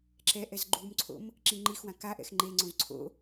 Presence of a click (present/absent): present